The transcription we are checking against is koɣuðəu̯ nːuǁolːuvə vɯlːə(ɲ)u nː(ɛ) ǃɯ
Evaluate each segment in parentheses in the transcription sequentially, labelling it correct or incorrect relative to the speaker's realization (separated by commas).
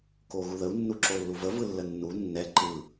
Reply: incorrect, correct